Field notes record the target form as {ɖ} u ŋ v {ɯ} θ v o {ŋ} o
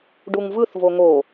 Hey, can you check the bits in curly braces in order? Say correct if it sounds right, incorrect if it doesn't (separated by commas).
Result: correct, correct, correct